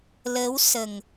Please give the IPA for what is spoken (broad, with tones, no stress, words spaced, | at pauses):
lə˧˥wsə˨˩ŋ